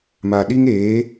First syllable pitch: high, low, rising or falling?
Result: low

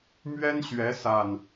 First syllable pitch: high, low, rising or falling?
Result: high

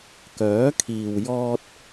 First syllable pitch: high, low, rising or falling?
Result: rising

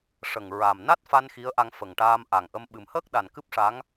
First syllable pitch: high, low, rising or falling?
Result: low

